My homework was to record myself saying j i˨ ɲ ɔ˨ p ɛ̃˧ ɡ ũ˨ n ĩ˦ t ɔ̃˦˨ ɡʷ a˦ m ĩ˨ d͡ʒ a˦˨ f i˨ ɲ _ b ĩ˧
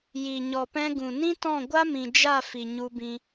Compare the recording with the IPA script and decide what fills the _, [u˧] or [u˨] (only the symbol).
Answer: u˧